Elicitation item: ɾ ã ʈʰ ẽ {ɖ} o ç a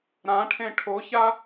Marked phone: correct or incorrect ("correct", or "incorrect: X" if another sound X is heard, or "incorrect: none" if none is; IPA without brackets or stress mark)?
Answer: incorrect: ʈʰ